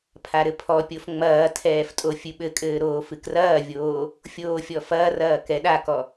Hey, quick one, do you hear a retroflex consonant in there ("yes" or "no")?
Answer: no